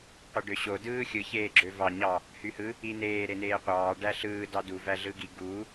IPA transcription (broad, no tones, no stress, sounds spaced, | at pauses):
qʷ e ɖ ø ɕ o d ɯː xʲ ɯ ç eː ɡ͡ǁ ø v ɑ ɲ ɑ | h y h ɯ | i n eː ɾ e n eː qʷ ɑː ɖ æ ɬ ɯː d ɑ d u v æ ɮ ɯː ɡ i ɡ uː